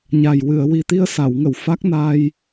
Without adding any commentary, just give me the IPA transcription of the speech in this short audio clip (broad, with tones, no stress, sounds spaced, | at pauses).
ɲ a˨˩ j w ɨ˨˩˨ ə̯ w i˨˩ t̪ i˧ ə̯ s a˨˩˨ w ŋ ə˨˩˨ w f a˦˥ k̚ n aː˧ j